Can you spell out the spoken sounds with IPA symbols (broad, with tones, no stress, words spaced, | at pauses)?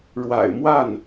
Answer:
ɻwa̰˨˩ɪ̯mwa˥˩n